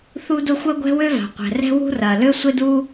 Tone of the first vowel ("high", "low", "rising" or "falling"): high